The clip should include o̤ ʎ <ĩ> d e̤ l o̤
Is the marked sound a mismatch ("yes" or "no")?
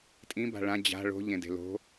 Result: yes